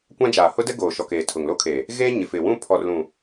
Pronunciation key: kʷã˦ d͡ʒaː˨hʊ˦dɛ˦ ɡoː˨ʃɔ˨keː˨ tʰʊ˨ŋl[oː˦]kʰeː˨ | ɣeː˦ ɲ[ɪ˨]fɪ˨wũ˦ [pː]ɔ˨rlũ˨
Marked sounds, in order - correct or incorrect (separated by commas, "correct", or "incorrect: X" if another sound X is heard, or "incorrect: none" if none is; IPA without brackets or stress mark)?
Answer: incorrect: o˦, correct, incorrect: pʰ